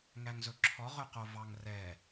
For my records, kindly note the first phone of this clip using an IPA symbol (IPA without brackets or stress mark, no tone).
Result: ŋ